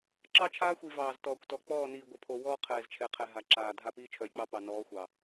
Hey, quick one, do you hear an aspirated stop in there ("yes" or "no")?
yes